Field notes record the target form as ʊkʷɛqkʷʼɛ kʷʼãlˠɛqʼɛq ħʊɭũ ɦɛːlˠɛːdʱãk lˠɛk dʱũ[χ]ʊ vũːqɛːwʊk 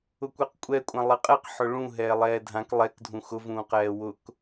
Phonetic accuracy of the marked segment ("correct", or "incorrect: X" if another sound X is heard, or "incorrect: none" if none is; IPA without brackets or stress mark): incorrect: x